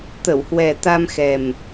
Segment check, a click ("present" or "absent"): absent